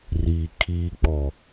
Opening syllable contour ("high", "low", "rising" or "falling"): low